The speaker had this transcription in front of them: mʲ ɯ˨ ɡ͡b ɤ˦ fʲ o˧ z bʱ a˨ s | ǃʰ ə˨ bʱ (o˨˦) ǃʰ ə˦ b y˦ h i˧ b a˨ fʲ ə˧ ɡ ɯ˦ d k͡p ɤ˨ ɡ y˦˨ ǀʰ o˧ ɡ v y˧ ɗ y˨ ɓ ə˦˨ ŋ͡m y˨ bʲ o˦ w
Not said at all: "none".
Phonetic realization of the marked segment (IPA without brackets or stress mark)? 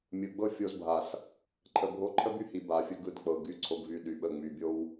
o˧